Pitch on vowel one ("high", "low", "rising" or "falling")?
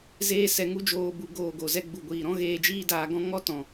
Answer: high